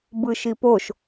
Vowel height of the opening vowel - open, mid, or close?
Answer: close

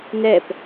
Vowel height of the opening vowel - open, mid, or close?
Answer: mid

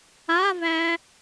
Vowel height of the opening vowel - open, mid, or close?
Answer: open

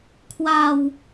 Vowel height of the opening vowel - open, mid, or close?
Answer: open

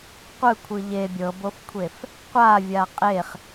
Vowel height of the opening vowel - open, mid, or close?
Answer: close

